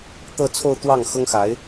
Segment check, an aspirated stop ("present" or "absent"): present